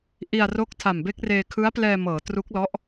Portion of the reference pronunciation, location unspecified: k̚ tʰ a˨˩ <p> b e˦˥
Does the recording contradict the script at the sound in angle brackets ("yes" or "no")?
yes